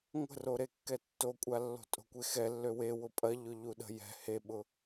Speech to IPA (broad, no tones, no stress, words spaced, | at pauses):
ŋʷə̤roɾekːɛ tːokʷʼalːo̤ tʼo̤kʷexɛlːø wewʊ pʼɐ ʎʊʎuɗə̤ jɛ̤ heɓʊ